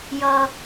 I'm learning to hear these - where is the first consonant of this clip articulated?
palate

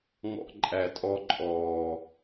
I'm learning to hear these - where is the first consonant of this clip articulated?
velum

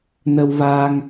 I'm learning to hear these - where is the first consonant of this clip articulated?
tongue tip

